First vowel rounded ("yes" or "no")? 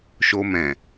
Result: yes